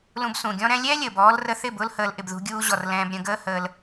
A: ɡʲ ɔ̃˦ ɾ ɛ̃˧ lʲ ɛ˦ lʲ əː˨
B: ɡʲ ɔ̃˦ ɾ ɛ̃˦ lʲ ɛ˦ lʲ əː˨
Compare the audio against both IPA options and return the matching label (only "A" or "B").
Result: B